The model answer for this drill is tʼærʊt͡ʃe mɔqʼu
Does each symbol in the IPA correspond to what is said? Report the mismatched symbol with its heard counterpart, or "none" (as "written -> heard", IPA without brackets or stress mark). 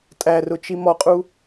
e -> i